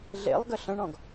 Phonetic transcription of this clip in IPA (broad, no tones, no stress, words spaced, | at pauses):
ɮḛlˠɡə ɬə̃ɳɔ̃ɡ